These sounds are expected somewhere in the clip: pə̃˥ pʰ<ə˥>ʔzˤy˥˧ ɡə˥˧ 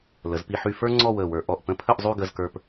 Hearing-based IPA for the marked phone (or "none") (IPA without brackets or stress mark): ə˥˧